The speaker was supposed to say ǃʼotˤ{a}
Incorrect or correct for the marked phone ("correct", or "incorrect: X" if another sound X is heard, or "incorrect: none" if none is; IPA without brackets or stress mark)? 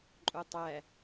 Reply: incorrect: æ